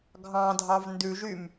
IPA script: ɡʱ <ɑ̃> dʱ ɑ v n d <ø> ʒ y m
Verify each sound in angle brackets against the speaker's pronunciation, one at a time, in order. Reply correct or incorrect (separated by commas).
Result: correct, incorrect